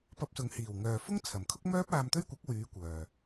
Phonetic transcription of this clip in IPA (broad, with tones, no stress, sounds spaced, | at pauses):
p ɐ˧ p̚ s ʊ˨ ŋ h iː˨˩ w ŋ œː˨ f ʊ˥ ŋ t͡sʰ ɐ˨˩ m kʰ ʊ˥ k̚ m œː˥ p̚ aː˧ m t̪ ɵ˥ ɥ kʷ ɐ˨˥ k̚ w yː˨˧ kʷ œː˨